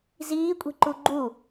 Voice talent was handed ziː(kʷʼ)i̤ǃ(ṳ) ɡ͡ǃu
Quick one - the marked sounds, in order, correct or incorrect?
correct, incorrect

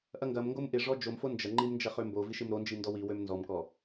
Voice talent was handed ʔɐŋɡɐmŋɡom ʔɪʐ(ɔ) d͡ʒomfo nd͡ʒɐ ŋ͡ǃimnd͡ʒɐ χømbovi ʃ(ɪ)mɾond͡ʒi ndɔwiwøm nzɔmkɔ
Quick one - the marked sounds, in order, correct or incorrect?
correct, correct

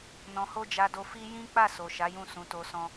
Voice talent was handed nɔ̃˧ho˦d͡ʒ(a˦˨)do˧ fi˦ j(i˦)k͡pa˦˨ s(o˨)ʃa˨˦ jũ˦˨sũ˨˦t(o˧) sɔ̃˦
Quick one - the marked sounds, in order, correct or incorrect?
incorrect, incorrect, correct, correct

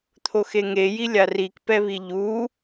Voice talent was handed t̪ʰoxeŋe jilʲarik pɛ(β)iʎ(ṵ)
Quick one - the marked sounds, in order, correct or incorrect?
correct, incorrect

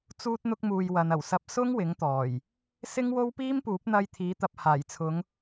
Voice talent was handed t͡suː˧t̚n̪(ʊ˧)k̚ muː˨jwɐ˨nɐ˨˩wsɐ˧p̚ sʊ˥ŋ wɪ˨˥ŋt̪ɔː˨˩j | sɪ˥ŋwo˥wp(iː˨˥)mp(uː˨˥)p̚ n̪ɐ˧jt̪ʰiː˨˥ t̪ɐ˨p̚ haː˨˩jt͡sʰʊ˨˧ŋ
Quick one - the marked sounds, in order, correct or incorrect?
correct, incorrect, correct

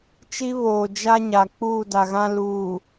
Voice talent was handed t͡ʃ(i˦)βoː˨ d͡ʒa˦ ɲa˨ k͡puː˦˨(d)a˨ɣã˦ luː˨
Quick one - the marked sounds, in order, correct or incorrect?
correct, correct

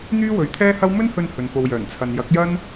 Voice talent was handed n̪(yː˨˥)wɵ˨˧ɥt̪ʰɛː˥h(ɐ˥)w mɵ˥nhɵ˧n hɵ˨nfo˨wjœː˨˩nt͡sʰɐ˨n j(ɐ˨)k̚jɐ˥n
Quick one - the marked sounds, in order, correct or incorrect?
incorrect, correct, incorrect

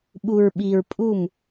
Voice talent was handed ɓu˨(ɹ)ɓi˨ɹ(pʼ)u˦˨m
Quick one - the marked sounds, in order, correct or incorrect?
correct, correct

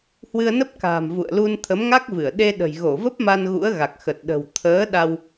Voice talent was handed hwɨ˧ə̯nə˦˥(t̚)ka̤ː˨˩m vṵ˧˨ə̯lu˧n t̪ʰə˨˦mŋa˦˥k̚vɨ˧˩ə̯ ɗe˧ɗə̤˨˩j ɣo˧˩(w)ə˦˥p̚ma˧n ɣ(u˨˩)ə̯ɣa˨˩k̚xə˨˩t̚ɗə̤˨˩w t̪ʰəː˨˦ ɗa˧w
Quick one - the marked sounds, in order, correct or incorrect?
incorrect, incorrect, incorrect

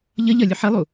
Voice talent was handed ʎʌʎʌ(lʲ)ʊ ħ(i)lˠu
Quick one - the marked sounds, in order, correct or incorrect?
correct, correct

